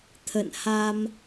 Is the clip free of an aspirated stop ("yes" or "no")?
no